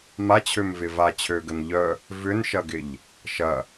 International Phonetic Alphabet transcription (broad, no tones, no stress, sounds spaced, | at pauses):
m a t͡ɕʰ ø m v ɪ v a t͡ɕʰ ø ɡ ə n ʎ œ | v ʏ n ʃ ɐ ɡ ɪ ʎ | ʃ ɐ